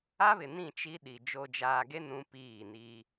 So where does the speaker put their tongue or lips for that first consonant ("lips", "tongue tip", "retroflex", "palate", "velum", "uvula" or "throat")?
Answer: lips